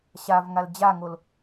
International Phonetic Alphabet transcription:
ɕ a v ŋ a l d͡ʑ a ŋ o l

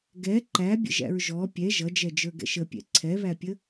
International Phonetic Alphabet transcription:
ɡ ɛ ǃ æ bʲ ə̰ ʒ æ̰ ɹ ʒ ɔ pʲ ɛ ʒ ʌ d͡ʒ ɛ d͡ʒ ə˞ ɡ ɛ̰ ʃ ə pʲ ɛ̰ ǀʰ ɛ β æ pʲ ə

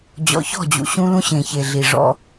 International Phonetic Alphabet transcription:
d͡ʑ ɔ̰˨ ç ɔ̤˦˨ d͡ʑ ṵ˨ ɕ ũ˦ l ũ˦ ɕ ẽ˨ ç e˨ ɮ i˨ ʐ ɔ̰˦

